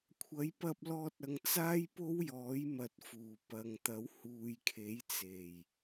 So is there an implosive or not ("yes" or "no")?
no